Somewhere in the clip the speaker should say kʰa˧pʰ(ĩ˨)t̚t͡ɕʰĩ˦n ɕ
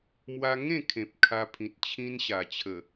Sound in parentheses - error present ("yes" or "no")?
no